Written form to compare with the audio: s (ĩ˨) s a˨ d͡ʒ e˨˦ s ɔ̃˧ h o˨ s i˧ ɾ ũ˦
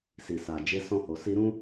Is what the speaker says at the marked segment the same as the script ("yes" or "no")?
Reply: no